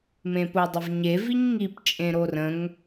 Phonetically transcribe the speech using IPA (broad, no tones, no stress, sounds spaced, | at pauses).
m ẽ p o dˤ ə v ɲ e v i ɲ ŋ i p t͡ʃʼ ẽ ɾ o r ə̃ ŋ